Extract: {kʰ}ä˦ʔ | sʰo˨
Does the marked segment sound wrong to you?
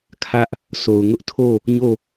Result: no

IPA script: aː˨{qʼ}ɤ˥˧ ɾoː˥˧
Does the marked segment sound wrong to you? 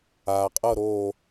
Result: no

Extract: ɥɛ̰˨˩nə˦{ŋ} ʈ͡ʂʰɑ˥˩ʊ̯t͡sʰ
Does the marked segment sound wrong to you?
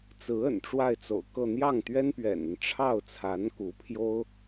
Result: yes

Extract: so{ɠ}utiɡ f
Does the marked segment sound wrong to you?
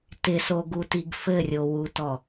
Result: yes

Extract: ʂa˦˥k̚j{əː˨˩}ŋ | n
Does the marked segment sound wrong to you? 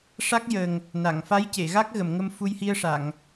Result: no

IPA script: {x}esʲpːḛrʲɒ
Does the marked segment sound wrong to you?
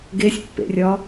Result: yes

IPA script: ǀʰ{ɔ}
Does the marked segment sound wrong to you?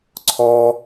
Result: no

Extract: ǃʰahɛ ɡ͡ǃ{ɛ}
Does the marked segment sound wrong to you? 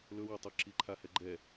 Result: no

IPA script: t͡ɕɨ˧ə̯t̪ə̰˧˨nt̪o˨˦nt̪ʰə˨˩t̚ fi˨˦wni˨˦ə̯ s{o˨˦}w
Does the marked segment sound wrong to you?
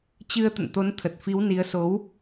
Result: no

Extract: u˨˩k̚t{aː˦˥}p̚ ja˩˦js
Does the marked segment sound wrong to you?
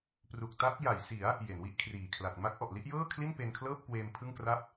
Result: yes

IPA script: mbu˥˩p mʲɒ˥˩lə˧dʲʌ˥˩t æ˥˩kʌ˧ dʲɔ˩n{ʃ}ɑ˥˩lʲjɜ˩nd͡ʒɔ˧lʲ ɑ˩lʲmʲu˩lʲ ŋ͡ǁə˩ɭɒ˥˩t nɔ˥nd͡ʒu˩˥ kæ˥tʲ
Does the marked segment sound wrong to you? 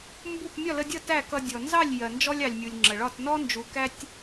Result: yes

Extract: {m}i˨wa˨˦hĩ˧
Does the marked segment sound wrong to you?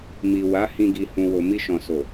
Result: no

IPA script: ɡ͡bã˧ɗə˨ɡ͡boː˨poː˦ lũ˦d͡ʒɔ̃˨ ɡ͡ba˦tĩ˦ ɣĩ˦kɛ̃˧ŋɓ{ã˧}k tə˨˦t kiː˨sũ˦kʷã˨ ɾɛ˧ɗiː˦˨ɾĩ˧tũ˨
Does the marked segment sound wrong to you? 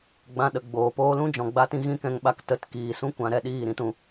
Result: yes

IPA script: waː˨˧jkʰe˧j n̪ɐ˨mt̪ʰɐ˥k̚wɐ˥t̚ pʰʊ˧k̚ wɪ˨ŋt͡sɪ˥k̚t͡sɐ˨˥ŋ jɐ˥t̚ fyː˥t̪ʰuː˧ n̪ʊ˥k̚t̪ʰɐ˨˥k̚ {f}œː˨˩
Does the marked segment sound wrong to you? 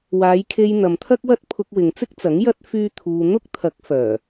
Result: no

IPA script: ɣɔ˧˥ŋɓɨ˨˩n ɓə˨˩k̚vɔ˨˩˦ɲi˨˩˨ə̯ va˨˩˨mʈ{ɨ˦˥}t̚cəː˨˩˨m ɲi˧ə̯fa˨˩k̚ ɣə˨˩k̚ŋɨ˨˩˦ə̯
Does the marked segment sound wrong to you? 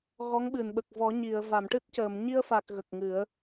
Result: no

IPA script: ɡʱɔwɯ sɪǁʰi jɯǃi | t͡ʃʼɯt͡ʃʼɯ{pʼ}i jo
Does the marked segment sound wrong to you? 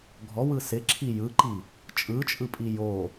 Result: no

